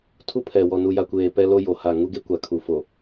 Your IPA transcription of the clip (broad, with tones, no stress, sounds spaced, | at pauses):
tʰ u˦ pʰ ɛ˨ w ɔ˨ n u˨ j a˨ kʷ eː˨ p ɛ˦ l o˦ j o˨ h a˦˨ ŋ u˦ ɡ e˦ kʷ a˨ kʰ u˨ f o˨